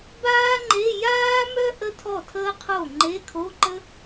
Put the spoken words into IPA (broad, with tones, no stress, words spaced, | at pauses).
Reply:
baː˥ŋ͡ǃe˧˥˧ jaː˥mœ˥ ʔə˥tʰɔ˥˩tʰəː˥qʰo˥˩ ŋ͡ǃe˧˥˧kʰo˧˥˧ǃə˥